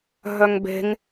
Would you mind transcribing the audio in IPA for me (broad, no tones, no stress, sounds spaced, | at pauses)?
ɦ œ ŋ b e̤ ŋ